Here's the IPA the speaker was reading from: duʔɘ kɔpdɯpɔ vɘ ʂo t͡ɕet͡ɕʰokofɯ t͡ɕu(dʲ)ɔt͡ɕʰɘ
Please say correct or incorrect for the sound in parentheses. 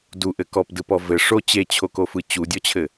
correct